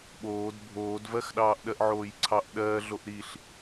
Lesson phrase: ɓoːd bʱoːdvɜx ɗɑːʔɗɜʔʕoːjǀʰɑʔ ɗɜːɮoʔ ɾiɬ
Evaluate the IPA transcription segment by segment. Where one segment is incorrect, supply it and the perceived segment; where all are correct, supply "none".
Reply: none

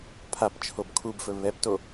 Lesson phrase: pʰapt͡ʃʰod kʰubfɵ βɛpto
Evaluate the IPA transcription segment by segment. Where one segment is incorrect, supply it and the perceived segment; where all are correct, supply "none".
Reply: d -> b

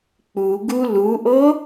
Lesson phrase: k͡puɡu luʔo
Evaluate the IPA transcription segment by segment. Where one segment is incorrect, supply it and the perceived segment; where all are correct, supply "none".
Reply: none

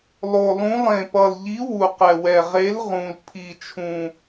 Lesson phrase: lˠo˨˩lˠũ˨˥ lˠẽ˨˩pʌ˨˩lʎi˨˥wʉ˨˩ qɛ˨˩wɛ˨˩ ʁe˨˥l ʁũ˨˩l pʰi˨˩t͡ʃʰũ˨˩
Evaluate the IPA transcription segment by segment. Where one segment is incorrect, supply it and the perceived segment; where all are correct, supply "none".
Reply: ʉ˨˩ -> u˨˩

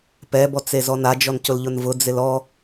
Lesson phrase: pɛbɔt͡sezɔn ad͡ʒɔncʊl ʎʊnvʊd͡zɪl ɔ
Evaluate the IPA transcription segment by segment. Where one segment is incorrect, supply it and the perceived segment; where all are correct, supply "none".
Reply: none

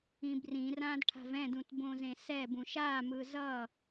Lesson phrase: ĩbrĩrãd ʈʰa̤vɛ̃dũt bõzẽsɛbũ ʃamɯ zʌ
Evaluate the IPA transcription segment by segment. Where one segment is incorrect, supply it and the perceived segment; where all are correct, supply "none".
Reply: none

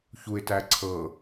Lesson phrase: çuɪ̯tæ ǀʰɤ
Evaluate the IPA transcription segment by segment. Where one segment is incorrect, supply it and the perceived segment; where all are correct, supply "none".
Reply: none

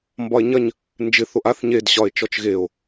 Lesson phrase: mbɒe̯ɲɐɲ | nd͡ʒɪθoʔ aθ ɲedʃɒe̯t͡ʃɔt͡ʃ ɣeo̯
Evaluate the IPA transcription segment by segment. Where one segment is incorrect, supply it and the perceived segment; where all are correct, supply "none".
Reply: ʃ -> ɕ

